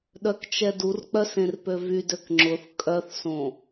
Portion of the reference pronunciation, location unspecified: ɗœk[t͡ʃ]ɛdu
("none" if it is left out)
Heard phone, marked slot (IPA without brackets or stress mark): t͡ʃ